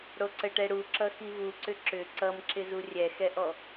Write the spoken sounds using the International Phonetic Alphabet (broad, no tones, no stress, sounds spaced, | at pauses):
ɽ o ǀ ə ʈ ɛ ɽ u ǁ ʌ x i v u ǀ ʏ ǁ ʏ ǀ ʌ m ǁ ɪ z u rʲ ɛ x ɛ ʔ ɔ